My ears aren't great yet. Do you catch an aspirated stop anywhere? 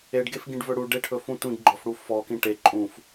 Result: yes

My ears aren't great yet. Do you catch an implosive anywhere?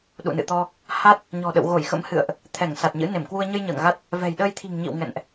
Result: yes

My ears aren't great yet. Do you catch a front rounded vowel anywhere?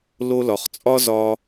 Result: no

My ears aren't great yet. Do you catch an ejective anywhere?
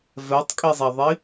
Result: yes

